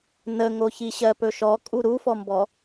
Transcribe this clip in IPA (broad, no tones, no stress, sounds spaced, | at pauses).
n ə ŋ o ç i ɕ ɜ p ɵ ʃ ɔ kʼ u ɾ u f ɔ m b ɔ